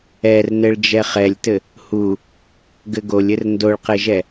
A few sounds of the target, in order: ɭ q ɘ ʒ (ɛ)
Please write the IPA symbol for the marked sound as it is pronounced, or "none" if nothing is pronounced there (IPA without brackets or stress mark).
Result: ɛ